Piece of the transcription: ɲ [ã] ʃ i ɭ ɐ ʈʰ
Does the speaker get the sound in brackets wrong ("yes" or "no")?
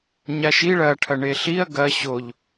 yes